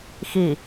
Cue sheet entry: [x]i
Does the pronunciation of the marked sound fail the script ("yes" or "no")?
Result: no